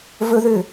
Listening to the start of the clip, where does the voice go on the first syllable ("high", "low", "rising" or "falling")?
high